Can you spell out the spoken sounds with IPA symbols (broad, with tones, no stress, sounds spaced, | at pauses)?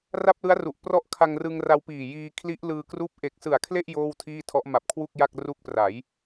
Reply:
r a˥˩ p̚ l ɯ˦˥ a̯ r u˨˩ ʔ p r ɔ˦˥ ʔ kʰ a˧ ŋ r ɯ˧ ŋ r a˧ w p iː˨˩ j iː˧ kʰ l i˦˥ ʔ l ɯː˧ k r uː˦˥ p̚ ʔ e˨˩ k̚ s ɯ˨˩ a̯ kʰ l e˥˩ ʔ j oː˥˩ w tʰ iː˥˩ tʰ ɔ˦˥ ʔ m a˨˩ p̚ kʰ w u˥˩ k̚ j a˥˩ k̚ r u˦˥ k̚ p r a˩˦ j